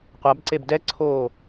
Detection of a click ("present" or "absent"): present